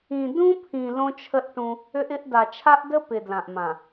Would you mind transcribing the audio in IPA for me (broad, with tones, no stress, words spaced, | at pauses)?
ĩ˨dũ˦pʰĩ˨ lõ˦t͡ʃʰə˦ʔʈũ˦ | ʏ˦ʔɪ˦ʔ da˨t͡ʃʰa˦ʔdə˦ pɪ˨ dlã˨ʔmã˨